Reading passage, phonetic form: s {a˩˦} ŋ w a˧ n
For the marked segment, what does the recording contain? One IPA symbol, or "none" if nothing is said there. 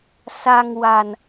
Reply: a˧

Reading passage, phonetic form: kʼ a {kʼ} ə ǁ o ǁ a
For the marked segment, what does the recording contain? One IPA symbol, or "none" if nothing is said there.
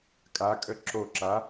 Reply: kʼ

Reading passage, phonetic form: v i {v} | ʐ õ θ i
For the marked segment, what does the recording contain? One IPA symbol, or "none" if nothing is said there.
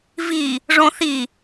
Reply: none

